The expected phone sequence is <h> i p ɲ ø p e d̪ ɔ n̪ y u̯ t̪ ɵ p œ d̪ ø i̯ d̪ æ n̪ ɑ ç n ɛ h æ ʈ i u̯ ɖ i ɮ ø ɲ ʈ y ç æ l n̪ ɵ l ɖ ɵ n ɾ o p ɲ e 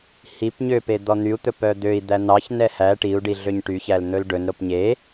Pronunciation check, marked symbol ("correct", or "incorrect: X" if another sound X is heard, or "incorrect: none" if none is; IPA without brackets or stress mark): correct